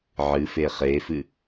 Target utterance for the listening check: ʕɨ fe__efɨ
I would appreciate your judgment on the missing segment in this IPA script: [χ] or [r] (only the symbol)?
χ